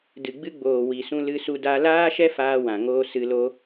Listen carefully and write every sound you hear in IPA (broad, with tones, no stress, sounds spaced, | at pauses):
d ɨ˨ ɡ͡b ɨ˧ ɡ͡b oː˨ w i˨ s ũ˧ l ɨ˧ s u˧ d a˧ l aː˦ ʃ ɛ˦ f aː˧ w ã˨ ŋ oː˧ s ɨ˧ l o˦